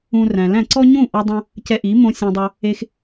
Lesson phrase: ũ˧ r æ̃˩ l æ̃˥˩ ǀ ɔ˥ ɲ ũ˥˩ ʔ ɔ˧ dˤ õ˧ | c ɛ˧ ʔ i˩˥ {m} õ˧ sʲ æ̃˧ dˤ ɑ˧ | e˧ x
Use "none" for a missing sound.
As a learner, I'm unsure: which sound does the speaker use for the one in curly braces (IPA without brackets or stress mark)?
m